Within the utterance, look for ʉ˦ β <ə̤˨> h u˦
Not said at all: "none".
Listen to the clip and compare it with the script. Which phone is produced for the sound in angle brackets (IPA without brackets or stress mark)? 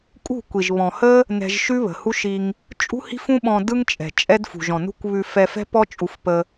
ə̤˨